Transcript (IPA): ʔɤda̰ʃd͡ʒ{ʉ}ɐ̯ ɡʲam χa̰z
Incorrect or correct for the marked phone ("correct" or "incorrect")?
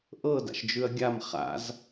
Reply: correct